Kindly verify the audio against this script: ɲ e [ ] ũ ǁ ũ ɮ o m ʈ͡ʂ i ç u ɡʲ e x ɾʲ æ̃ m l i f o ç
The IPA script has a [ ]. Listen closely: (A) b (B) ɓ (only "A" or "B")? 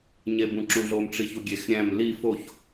A